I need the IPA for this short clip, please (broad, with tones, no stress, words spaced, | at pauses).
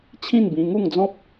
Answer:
t͡ɕʰĩ˥˧nbĩ˧ŋu˥˧ŋd͡zɔ̃˦p̚